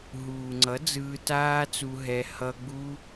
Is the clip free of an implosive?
yes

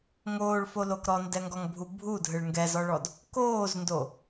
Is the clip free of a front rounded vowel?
yes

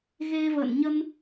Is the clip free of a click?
yes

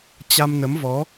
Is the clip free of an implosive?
yes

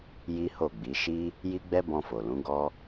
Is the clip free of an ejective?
yes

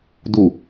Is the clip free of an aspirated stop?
yes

